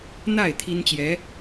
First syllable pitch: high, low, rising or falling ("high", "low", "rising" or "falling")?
falling